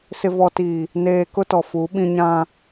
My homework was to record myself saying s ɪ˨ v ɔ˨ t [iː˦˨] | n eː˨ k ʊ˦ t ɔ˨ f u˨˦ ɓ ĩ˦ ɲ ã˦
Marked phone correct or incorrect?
incorrect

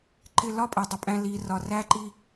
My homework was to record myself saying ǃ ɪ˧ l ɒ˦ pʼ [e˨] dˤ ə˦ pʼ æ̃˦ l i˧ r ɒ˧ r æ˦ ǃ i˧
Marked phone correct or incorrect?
correct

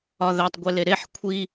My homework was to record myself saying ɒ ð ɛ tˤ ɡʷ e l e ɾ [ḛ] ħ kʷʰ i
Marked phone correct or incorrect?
incorrect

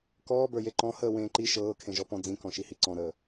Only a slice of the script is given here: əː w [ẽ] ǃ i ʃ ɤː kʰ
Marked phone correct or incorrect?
incorrect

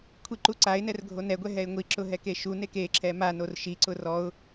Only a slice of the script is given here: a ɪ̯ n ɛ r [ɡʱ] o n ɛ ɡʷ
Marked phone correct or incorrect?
correct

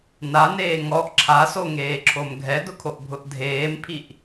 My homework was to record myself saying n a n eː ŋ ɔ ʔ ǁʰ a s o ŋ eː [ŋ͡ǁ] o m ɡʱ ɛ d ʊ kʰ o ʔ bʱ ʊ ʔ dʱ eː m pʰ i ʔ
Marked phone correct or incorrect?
incorrect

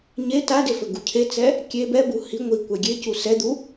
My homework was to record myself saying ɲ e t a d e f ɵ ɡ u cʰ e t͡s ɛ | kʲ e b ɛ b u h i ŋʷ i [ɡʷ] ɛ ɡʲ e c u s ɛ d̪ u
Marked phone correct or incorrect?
incorrect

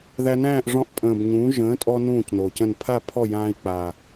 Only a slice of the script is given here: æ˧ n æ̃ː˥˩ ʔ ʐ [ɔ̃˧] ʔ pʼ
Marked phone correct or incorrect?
correct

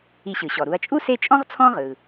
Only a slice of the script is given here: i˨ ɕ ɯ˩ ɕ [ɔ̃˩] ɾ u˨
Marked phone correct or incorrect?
incorrect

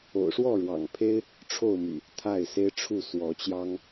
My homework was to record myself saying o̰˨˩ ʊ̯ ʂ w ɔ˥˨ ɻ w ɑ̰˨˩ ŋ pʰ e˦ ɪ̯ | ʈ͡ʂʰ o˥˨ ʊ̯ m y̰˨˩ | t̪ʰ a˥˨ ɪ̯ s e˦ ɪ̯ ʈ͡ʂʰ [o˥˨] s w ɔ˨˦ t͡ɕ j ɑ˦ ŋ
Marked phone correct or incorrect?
incorrect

